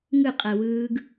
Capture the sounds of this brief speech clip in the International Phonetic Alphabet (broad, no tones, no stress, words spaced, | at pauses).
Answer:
ŋɯqʼɛwɯːɡ